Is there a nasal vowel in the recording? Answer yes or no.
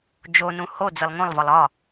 yes